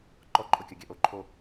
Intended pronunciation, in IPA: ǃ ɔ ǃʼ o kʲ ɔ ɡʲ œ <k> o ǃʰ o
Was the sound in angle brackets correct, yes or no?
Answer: no